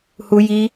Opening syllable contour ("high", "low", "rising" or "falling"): high